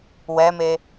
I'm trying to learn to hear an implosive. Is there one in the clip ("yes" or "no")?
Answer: no